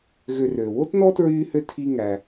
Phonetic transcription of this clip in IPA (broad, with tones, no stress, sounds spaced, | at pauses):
ɣ ø˨ r øː˩ w o˥ t n ɔ˥ t ɹ yː˥ h ø˥ tʰ i˦ ŋ æ˨